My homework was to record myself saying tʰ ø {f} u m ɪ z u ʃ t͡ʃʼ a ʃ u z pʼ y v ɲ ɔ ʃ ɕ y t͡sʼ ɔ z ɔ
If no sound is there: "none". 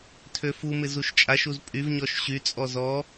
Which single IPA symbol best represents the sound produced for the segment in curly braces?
f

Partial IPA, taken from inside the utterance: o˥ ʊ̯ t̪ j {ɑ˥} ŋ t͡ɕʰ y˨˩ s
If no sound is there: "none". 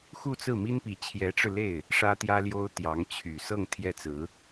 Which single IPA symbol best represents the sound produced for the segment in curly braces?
ɑ˧˥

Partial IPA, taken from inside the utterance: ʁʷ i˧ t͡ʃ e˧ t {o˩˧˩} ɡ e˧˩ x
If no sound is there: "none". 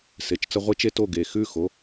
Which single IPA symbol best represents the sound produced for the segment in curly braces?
o˥˩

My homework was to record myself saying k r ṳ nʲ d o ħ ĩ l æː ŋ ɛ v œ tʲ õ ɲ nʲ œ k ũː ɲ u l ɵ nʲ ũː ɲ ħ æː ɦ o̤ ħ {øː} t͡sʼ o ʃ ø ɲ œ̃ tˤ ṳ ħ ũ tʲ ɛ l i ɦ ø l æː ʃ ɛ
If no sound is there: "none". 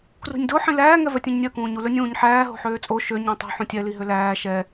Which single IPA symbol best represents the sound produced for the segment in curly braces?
øː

